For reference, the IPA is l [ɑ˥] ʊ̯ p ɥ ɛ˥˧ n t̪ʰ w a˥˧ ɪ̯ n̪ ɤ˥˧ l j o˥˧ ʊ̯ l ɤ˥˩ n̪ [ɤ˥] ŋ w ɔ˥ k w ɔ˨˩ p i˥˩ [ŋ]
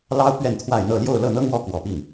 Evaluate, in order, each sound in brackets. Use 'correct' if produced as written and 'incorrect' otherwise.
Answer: correct, correct, correct

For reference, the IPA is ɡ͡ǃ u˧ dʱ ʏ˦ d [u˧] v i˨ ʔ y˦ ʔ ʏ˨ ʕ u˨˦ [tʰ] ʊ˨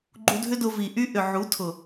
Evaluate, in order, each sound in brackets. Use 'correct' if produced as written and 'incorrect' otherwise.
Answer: incorrect, correct

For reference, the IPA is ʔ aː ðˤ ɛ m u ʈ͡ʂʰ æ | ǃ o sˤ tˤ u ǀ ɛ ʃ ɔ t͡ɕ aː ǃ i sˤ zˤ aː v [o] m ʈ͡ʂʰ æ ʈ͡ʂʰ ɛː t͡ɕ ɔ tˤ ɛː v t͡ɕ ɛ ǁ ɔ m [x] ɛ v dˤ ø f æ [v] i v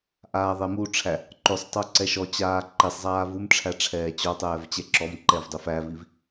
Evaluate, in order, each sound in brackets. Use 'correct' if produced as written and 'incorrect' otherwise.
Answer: incorrect, incorrect, correct

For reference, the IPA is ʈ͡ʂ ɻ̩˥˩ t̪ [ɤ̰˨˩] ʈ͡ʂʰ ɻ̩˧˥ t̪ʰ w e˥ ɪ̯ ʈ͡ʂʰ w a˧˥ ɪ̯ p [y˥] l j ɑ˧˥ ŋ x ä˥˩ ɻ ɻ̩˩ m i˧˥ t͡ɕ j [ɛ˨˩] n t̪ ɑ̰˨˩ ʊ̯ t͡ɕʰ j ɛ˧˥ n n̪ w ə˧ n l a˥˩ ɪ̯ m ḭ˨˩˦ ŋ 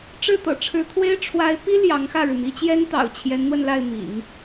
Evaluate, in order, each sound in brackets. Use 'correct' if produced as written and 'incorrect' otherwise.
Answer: correct, incorrect, incorrect

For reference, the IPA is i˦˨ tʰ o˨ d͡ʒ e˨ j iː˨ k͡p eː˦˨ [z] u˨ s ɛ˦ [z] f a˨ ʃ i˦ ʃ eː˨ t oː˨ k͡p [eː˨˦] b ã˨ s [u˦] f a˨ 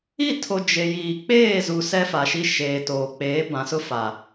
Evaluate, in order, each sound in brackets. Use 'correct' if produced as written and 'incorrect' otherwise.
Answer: correct, incorrect, correct, incorrect

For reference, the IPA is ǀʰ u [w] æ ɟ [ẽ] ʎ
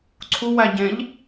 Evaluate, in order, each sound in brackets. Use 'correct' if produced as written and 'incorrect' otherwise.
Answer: correct, correct

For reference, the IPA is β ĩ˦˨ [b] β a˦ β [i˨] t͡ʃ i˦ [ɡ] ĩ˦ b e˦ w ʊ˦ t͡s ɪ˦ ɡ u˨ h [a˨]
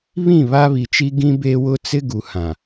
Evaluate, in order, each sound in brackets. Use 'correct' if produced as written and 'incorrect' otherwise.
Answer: incorrect, correct, correct, incorrect

